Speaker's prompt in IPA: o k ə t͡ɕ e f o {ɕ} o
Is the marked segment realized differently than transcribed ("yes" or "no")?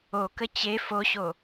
no